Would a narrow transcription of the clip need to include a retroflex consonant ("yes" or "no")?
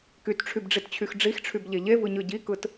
yes